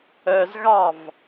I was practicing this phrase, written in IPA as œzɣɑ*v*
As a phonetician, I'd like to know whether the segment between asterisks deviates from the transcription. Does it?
no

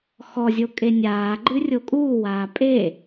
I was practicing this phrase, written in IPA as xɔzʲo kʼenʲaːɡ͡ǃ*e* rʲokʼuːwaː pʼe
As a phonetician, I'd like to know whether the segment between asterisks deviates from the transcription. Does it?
yes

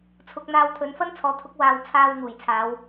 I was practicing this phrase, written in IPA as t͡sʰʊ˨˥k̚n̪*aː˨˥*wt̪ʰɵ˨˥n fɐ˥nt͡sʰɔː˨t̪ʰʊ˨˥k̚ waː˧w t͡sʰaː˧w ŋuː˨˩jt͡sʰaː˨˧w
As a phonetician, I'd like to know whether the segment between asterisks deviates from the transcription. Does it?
yes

